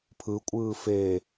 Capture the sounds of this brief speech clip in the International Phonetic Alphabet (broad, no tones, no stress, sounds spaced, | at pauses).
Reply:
pʰ ɯ kʷʼ ɯː f e